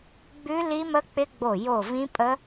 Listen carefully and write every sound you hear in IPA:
ɡ͡b ʉ˦˥ l i˦˥ m ə˦˥ k͡p ɪ˦˥ ɡ͡b o˧˩ j o˧˩ v ĩ˦˥ pʼ ə˦˥

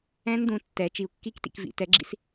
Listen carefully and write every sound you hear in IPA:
ɛ̃˦˥ n d̪ ũ˩˧ tː ɛ˩˧ t͡ʃ i˩˧ u̯ kː i˦˥ k t ḭ˩˧ k v ḭ˩˧ t ɛ˩˥ ɡ͡ǁ ḭ˦˥ s

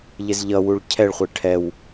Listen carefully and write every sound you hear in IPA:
ʎ ɪ z ʎ ʌ w u ɭ cʰ ɛ ɭ χʷ ɪ ʈʰ ɛ w

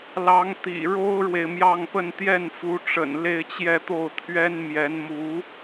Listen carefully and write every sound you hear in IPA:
l ɑ˧˥ ŋ t̪ ḭ˨˩ ɻ o˥ ʊ̯ ɻ w e˨ ɪ̯ m j ɑ˥˧ ŋ p ə˥˧ n t̪ j ɛ˥˩ n f u˧˥ ʈ͡ʂ ə̰˨˩ n l e˥˧ ɪ̯ t͡ɕ j ɛ˥˧ t̪ o˥˩ ʊ̯ t̪ʰ ɥ ɛ˥ n m j ɛ˧˥ n m u˧˥

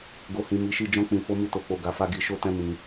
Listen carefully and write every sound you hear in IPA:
ɡ o˨ h ĩ˨ m i˨˦ ʃ i˦˨ d͡ʒ ɔ̃˧ k͡p ĩ˨ f o˧ m i˦ t o˧ k͡p o˧ ɡ a˧ f a˦ ɡ i˧ ʃ o˦ t ɛ̃˦ m ĩ˧

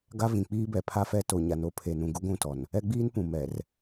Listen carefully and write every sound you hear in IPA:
ɡ a˦ v ĩ˨ k͡p iː˦ b ɛ˨ pʰ a˦ f ɛ˦ t o˨ ɲ a˨ n o˦ pʰ e˨ n ũ˨ ɡ u˦ ɡʷ ũ˦˨ t ɔ˨ n | ɛ˦ ɡ͡b iː˦ n p ũ˨ m ɛ˨ r

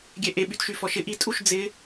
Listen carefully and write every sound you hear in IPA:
ɡʲ ɛ ʔ e ɓ y t ʃ y f ɔ ʃ ɪ ʔ i tʼ u ʃ d͡z ɪ

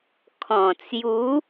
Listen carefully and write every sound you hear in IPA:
kʰ ɔ̃˨˩ t͡s j u˨˦

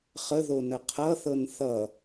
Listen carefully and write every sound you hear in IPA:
χ ə ð o n ə qʰ ʌ θ ɤ n θ ʌ

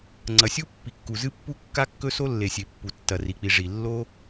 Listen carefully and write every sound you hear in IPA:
ŋ͡ǀ ɐ˩ sʲ u˥ pː i˩ kː u˩ z ɨ˥ pː u˥ kː a˥ kː ɵ˥ s o˥ lː e˩ sʲ e˩ pː u˩ tː ɐ˩ r i˩ k͡p i˩ ʐ i˩ lː o˥

